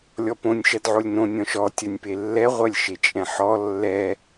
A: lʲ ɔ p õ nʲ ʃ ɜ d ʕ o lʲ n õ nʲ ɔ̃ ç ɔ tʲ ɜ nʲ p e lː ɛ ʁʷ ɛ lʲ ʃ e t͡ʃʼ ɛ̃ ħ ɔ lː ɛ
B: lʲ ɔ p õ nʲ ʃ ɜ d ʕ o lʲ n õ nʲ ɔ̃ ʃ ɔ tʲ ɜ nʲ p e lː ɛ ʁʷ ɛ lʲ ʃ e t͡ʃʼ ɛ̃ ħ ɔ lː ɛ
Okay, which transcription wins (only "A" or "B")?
B